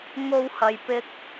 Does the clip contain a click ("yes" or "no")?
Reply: no